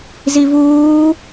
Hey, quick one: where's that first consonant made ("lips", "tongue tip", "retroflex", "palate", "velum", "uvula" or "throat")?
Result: tongue tip